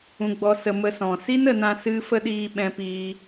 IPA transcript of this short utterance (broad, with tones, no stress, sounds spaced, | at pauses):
ũ˧ ɡ͡b ɔ˧ s ə˧ m ə˧ s ɔ̃˨ s i˦ n ə˧ n ã˦ s ɨ˧ f ə˧ ɗ iː˧ ɓ ɛ̃˧ p iː˧